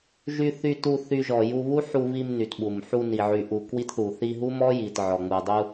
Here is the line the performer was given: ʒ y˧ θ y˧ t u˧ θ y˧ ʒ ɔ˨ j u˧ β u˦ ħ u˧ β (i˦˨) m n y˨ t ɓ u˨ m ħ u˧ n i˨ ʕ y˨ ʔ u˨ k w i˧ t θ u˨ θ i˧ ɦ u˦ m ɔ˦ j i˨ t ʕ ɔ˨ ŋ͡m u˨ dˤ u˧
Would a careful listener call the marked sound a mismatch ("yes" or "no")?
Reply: yes